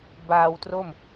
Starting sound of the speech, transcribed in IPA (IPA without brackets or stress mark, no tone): b